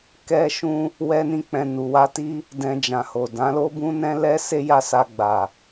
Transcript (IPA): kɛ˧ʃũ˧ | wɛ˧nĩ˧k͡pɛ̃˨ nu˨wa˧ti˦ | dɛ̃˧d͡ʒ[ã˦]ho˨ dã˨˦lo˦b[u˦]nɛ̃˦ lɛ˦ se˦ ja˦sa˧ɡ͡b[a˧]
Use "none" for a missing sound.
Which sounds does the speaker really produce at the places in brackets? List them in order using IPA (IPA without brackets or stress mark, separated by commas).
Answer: ã˨, ũ˦, a˨